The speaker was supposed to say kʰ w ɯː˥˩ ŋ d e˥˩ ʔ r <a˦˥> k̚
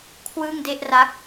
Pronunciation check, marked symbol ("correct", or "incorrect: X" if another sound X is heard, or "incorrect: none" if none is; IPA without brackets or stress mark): correct